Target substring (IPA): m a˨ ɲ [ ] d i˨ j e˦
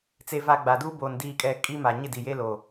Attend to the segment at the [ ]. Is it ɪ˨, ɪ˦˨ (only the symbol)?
ɪ˦˨